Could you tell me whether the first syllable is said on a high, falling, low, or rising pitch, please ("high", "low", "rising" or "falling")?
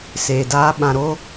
low